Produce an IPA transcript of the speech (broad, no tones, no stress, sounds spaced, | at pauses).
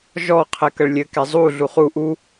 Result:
ʒ ɔ qʰ ɛ k ə ɭ lʲ ɘ k ɛ zˤ u ɮ u χ u ʔ u